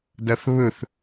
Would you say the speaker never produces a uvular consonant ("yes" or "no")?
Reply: yes